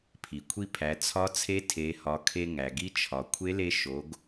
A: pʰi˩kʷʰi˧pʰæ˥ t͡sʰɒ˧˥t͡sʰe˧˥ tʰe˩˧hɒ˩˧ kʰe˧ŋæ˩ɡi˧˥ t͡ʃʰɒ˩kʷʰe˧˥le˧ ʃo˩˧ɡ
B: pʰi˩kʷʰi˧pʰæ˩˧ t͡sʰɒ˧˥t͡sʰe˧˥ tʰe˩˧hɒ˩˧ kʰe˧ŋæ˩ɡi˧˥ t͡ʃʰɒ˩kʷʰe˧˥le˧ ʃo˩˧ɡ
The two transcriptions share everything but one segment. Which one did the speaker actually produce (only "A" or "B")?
B